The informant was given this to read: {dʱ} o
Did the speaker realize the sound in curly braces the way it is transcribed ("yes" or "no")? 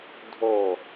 yes